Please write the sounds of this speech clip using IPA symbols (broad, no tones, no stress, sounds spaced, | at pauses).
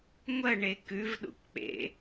ŋʷ ɐ ɳ e k ʉ v ɗ ṵ k k͡p ḛ